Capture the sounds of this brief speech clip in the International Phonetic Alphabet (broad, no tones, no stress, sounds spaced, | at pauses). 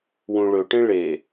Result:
w ũ ɭ ɵ ʈ ẽ ɭ e